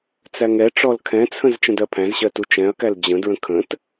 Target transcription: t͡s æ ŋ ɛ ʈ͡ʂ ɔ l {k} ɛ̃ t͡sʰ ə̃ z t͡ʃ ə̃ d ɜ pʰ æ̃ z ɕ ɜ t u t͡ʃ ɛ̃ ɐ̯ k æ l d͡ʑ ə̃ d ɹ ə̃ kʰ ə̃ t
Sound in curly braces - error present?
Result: yes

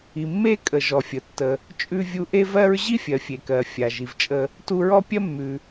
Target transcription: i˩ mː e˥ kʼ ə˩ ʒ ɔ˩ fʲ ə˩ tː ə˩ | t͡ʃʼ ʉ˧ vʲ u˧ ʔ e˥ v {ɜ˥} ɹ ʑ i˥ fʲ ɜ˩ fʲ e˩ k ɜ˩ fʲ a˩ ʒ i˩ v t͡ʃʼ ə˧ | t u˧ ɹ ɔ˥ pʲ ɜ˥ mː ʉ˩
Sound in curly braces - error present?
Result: no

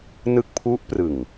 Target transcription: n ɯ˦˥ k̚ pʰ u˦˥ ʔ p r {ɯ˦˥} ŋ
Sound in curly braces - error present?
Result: yes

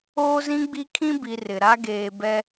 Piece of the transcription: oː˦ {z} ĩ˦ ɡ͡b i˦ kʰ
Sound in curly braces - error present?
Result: no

